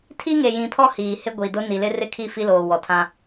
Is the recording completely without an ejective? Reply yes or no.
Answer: yes